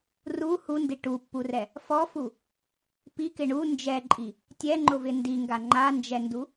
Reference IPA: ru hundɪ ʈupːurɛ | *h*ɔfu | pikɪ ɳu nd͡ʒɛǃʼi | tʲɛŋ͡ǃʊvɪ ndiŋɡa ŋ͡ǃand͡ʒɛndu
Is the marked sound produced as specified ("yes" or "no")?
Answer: no